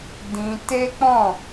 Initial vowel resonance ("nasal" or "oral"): nasal